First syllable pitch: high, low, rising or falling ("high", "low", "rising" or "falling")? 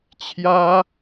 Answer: high